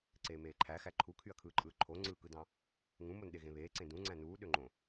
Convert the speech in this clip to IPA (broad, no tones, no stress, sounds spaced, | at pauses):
ǀ eː m eː ǃʰ æ x æ ǃʰ u kʰ y ɐ̯ kʰ ɯː ǃʼ ɯː ǃʰ o ŋ͡ǀ ɯː k ɯ d ɑ̃ | ŋ ũ m o n ɗ e ɣ ẽ β eː ǀ ẽ d ũ ŋ͡ǀ æ̃ n uː ɗ ø ŋ͡ǃ õ